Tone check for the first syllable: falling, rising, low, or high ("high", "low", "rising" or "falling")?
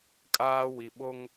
high